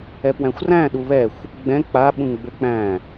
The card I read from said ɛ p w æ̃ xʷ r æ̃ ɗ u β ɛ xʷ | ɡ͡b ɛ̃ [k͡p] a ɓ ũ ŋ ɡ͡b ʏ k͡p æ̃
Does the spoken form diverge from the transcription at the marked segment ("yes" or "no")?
no